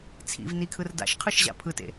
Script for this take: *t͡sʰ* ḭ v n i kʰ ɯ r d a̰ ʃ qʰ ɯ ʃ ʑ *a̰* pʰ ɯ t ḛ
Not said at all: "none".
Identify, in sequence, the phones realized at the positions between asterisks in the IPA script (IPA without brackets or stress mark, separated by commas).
t͡sʰ, a̰